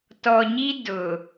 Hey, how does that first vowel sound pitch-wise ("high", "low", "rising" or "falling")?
low